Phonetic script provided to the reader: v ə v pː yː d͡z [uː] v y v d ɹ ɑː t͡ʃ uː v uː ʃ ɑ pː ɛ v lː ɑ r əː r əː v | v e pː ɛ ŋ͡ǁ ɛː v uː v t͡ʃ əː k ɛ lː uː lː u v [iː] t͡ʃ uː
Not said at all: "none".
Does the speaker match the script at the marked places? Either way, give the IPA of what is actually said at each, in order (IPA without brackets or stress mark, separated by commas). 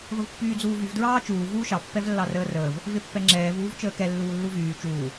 uː, yː